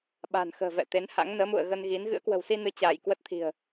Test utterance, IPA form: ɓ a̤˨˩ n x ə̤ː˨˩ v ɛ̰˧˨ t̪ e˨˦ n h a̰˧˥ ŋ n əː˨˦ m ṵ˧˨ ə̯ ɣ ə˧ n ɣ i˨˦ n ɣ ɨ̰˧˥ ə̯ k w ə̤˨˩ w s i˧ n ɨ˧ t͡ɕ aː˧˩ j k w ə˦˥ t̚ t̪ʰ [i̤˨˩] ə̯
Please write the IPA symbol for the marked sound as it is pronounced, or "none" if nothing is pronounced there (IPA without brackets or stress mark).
i̤˨˩